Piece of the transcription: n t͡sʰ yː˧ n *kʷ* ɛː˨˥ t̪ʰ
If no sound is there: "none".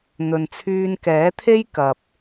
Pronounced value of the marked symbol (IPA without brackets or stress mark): k